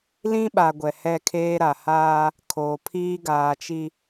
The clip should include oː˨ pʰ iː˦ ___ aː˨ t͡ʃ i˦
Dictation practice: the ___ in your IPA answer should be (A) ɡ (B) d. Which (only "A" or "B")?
A